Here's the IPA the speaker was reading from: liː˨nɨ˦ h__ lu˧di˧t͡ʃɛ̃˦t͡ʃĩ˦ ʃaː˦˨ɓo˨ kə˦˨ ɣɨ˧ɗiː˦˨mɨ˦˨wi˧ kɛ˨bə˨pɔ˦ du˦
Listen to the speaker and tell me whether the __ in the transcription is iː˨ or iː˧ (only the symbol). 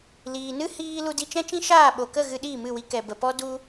iː˧